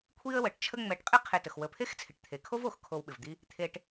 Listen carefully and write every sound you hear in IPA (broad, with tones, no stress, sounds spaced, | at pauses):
kʷʰ i˦ ə̯ w ə˩ ʈ t͡ʃʰ ə˦ ŋ͡m ɛ˨ ʈ qʼ ɪ˥ qʰ e˨ t ə˩ x w ə˨ pʰ e˥ x t͡sʰ ɪ˩ ʈ t̪ʰ e˩ kʰ o˥ v o˩ x kʰ o˨ w ɓ ɪ˩ v d̪ i˦ | t̪ʰ e˨ ʈ